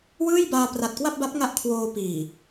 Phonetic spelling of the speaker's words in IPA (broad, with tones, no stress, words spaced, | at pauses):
wɯː˥˩jbaː˧ pra˨˩t̚kwa˥˩p̚ba˦˥p̚ŋa˦˥ʔ kʰwoː˧ piː˨˩